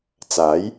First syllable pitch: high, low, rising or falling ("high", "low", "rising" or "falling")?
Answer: rising